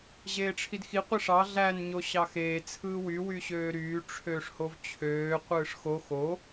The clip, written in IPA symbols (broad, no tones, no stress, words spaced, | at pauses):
ʑeːʈ͡ʂʰidxi qʷiʂɑ ɮæn ɲoɕɑxeː t͡sʰɯːwy wyɕøːɾyː ʈ͡ʂʰøːʂhovt͡ɕʰøː qʷɯːʂxo xo